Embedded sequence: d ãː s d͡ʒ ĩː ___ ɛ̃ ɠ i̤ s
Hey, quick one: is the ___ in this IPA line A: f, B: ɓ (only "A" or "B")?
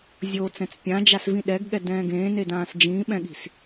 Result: B